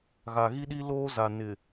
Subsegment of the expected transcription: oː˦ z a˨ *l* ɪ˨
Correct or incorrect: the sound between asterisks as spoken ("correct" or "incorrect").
incorrect